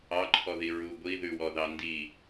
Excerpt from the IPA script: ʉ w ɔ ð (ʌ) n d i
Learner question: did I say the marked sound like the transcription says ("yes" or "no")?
no